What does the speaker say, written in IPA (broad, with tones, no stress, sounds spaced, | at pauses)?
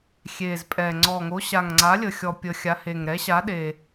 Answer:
xʲ e˨˩ z pʼ ɛ˨˩ ŋ͡ǀ ɔ˨˩ ŋ o˨˥ ɕ a˨˩ ŋ ŋ͡ǀ a˨˥ lʲ ə˨˩ xʲ ɔ˨˩ pʲ ə˨˩ xʲ a˨˥ h e˨˩ ŋ ɾ ɛ˨˥ ɕ a˨˥ ɗ e˨˩